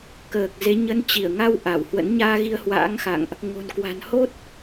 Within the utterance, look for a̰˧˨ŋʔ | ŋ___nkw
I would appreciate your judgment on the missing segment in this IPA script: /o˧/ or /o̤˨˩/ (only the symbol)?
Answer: o̤˨˩